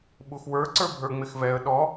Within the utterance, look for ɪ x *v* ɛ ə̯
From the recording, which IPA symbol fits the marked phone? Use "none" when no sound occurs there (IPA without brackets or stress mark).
v